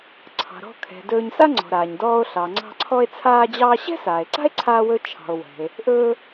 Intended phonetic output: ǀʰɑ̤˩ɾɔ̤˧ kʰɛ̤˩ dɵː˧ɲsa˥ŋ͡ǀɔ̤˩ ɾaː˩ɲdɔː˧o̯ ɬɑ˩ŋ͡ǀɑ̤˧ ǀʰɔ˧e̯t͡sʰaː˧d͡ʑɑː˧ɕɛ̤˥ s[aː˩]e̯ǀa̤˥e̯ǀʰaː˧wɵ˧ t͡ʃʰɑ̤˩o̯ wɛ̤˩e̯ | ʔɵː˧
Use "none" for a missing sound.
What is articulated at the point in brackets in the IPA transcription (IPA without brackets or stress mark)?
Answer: aː˩